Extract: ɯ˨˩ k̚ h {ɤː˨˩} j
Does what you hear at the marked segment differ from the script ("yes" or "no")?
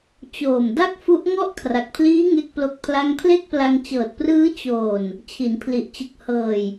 no